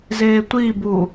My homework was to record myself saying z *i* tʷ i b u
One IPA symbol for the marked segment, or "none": e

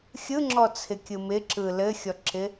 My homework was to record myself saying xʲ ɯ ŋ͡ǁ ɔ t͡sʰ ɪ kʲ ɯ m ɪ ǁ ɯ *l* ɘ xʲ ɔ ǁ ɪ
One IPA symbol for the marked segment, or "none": l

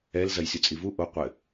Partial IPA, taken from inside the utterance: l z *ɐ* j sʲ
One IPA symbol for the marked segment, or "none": ɐ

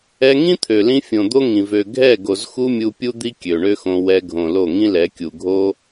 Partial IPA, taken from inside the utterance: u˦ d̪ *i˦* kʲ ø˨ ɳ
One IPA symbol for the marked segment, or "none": i˦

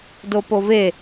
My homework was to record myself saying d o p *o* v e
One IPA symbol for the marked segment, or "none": o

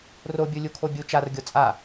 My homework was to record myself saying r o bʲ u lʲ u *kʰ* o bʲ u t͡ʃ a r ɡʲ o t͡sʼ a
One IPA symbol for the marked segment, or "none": kʰ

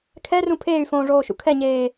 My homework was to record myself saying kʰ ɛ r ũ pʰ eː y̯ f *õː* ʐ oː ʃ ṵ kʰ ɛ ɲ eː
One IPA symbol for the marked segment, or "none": õː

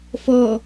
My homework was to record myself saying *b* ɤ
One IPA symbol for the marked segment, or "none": f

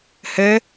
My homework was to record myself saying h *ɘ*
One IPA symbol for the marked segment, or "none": ɘ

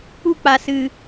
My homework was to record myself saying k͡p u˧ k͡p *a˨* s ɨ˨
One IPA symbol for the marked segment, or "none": a˨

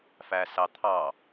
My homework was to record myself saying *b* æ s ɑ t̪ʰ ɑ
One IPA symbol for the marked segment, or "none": f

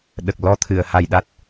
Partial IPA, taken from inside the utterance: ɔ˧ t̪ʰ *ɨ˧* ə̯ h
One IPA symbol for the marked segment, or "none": ɨ˨˩˨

